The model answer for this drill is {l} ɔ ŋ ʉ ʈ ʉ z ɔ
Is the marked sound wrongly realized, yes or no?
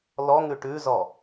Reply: no